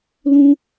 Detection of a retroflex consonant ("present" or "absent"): absent